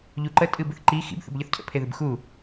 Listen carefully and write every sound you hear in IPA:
ʎ u ǃ ə tʼ ɨ b ɨ θ ǃ i x ḭ b θ ə̰ b ʎ ʌ θ cʰ ə̰ pʰ e ð ɨ b x u

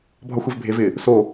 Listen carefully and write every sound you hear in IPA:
bʱ ɒ xʷ e v bʱ e v ɪ | s o

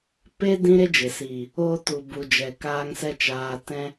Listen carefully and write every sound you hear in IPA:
p e˦ d ĩ˦ ɾ e˦ d͡ʒ e˨ s iː˨ | oː˧ t u˨ b u˨ d͡ʒ ɛ˨ k aː˧ ŋ s ɛ˧ t͡ʃ aː˨ t ɛ̃˧

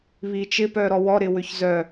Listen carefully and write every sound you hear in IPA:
β i t͡ʃ ɪ p œ ɾ ɔ w ɔ ɾ ɪ w ʏ ç z œ

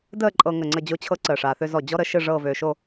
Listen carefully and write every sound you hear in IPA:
d əː˥˧ ǃʼ ɤ˧ ŋ ə˧˩ ŋ͡ǀ ə˥˧ d͡ʑ o˥˧ t͡ɕʰ ɤ˥ ǀ əː˧˩ ʂ aː˧ θ ø˥ z ɔ˧˩ d͡ʑ ɔ˥ ɾ ə˩˧ ʃ ɨ˥˧ ʐ ɤː˥˧ v øː˧ ʃ o˥˧

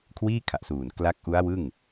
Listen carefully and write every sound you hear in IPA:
kʰ w iː˥˩ kʰ a˨˩ ʔ s uː˨˩ n k l a˦˥ k̚ ʔ u˦˥ a̯ w ɯ˥˩ ŋ

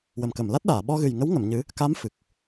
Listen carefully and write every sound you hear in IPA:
w ə˨˩ m k ə˨˩˨ m l a˦˥ t̚ ɗ aː˨˩˨ ɓ ɔ˧ ɣ ɨ˨˩ j ŋ ə˧˥ w ŋ ə˨˩˨ m ɲ ɨ˧˥ | k a˧˥ m f ɨ˨˩ k̚

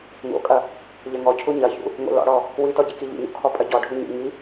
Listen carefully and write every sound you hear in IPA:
ŋ o̰ kʼ ɐ | ʎ ɐ ŋ ɔ cʰ u ɲ ɐ ç ṵ | ŋ o̰ l ɔ̰ ɽ ɔ | w i t ɔ ɟ i k i ʎ ḭ ɲ o̰ kʰ ɔ pʼ ɐ ɟ ɔ ɖʱ u ɲ ṵ ŋ i

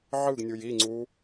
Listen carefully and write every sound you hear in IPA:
ʕ ɯ ɡ nʲ u j i ŋ͡ǀ u

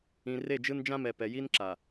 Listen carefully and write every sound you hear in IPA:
ĩ˨ r e˦˨ d͡ʒ ɯ˦ n d͡ʒ ã˦ m ɛ˨ p ɛ˨ j i˦ n ǁ a˨

